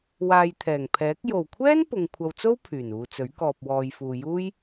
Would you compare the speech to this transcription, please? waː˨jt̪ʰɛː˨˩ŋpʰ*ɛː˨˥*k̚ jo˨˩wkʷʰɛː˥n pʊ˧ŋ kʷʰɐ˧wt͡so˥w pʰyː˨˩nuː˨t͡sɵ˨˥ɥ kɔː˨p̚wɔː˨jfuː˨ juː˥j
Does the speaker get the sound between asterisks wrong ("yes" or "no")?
no